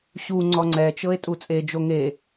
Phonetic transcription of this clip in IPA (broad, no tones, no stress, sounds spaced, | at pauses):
ɕ u ŋ͡ǀ ɔ ŋ͡ǀ ɛ t͡ʃ ɤ e̯ tʼ u t͡sʼ e d͡ʒ o ŋ e